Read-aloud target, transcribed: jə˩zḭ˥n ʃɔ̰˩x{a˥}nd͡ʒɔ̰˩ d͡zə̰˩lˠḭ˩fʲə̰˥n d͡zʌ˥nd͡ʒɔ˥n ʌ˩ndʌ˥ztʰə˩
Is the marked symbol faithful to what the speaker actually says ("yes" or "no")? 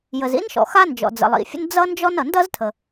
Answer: yes